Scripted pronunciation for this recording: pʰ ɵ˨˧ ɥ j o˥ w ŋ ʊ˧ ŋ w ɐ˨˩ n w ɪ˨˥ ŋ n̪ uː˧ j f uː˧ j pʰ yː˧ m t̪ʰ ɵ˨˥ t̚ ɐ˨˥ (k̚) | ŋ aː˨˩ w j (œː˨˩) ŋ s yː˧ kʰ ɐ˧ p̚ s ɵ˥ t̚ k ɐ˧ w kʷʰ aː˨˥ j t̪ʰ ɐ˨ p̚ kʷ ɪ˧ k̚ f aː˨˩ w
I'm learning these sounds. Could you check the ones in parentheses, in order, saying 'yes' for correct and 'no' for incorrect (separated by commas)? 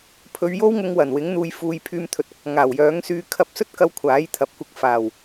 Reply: yes, no